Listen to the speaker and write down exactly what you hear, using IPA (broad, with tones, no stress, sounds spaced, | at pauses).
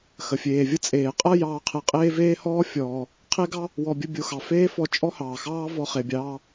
x ə˩ fʲ eː˩ vʲ ə˥ t͡sʼ eː˩ qʼ ɐ˥ j ɑː˧ qʰ e˧ qʼ eː˥ v eː˥ h ɔː˥ fʲ ɔː˩ | qʰ e˥ ɡ ɑ˥ | w ɔ˧ bʲ ə˥ bʲ o˧ x ɑ˩ f eː˥ f ɔ˧ t͡ʃʼ ɔ˥ h ɑː˩ x ɑː˥ v ɔ˧ χ e˩ bʲ ɑː˧